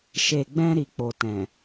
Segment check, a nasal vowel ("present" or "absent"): present